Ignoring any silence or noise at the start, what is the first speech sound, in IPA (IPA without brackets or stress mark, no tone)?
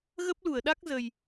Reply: ɣ